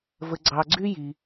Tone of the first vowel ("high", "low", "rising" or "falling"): low